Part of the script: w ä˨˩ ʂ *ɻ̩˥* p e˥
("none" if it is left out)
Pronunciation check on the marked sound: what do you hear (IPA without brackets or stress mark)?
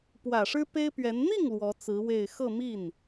ɻ̩˥